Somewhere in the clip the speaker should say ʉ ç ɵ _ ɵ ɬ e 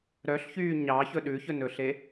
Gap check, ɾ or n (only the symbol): n